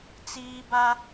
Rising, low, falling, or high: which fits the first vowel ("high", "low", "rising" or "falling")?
high